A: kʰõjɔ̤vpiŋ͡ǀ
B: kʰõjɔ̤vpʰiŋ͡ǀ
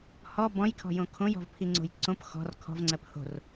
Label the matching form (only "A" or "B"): B